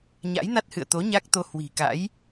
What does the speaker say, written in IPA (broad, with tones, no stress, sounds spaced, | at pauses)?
ɲ a̰˧˥ j n a˦˥ t̚ h ɨ̰˧˨ ə̯ t̪ o˨˦ ɲ a˦˥ k̚ t̪ o˧ h w i̤˨˩ k a̰˧˥ j